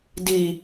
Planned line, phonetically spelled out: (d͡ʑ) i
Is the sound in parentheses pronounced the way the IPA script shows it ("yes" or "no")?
no